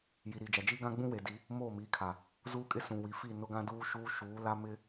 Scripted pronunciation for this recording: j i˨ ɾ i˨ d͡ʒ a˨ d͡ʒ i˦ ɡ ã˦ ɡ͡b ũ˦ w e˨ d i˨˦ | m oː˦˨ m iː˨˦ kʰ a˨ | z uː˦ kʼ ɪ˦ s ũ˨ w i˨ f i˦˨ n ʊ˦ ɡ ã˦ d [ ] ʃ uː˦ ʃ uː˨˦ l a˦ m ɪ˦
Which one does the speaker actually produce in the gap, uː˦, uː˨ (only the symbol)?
uː˦